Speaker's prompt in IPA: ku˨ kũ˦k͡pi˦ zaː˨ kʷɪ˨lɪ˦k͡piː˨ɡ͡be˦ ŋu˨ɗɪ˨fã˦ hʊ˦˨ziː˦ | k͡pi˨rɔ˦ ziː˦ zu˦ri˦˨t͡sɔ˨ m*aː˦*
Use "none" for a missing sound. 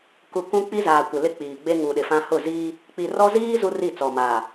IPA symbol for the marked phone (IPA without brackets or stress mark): aː˨